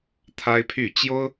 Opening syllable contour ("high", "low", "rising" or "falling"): high